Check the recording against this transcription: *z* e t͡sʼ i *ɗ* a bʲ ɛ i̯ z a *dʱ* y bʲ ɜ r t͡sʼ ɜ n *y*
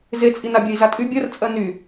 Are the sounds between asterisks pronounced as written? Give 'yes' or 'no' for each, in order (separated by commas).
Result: yes, no, no, yes